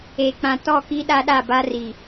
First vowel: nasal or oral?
oral